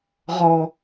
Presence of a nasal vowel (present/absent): absent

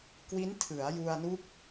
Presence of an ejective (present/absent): absent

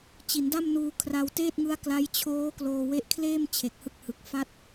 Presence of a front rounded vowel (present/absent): absent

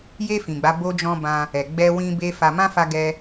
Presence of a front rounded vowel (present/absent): absent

